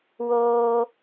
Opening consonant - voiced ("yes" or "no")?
yes